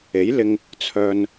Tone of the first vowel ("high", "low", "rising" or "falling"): rising